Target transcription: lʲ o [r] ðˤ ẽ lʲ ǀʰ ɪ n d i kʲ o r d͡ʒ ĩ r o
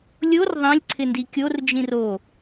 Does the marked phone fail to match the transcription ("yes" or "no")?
no